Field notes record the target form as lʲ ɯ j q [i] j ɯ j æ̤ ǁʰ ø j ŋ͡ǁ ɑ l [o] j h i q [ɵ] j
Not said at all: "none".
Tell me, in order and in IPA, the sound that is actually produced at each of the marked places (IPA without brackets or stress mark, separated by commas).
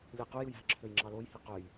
y, o, ø